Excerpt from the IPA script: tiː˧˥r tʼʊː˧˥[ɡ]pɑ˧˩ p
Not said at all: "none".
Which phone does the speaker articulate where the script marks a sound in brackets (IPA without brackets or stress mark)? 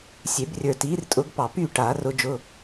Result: ɡ